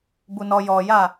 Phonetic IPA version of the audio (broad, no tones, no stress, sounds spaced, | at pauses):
b u n ɔ j ɔ j a